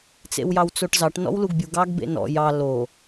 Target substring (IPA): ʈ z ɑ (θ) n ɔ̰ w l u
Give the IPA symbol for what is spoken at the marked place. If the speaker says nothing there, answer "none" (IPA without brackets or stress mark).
ʈ